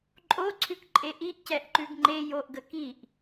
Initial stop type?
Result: click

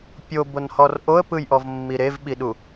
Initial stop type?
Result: plain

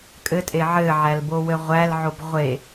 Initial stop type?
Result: ejective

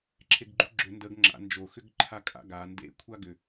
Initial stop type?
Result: click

